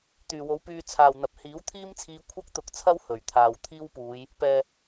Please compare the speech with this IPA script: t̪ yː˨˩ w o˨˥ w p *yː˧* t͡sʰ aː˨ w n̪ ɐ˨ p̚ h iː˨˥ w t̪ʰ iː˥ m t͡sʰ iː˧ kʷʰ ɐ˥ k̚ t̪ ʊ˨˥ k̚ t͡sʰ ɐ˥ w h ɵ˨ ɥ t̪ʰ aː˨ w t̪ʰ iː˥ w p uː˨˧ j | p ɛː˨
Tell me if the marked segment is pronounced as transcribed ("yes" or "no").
yes